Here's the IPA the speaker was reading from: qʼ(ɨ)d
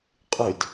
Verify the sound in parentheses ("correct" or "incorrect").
correct